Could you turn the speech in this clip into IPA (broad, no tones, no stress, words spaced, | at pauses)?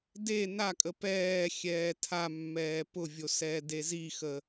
de nakʼə pɛːxʲɛː tʰamːɛː pʊvʲo sɛːdezixə